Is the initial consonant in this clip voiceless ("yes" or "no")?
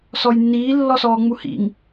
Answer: yes